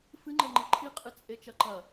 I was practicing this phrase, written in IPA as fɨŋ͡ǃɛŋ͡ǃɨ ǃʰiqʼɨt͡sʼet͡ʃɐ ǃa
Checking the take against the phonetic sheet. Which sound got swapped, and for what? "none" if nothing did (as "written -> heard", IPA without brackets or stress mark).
a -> ɐ